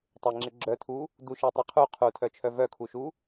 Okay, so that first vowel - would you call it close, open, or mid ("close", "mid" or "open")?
mid